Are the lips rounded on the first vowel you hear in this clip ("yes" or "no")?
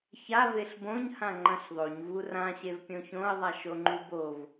no